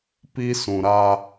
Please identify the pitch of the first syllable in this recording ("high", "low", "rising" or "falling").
high